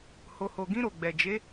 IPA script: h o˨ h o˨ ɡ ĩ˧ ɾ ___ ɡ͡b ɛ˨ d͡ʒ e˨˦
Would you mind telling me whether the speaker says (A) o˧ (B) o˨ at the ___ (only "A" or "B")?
B